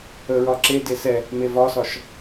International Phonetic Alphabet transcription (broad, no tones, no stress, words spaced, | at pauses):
əɹɒ ǁede sɛ | mevɒsɒʃ